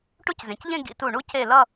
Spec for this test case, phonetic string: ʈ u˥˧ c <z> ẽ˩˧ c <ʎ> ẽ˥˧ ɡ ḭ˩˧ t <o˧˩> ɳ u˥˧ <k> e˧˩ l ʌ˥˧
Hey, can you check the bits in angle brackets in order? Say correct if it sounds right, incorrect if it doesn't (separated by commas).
correct, correct, incorrect, incorrect